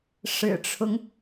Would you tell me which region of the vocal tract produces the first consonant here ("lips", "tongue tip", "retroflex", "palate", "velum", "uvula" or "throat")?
retroflex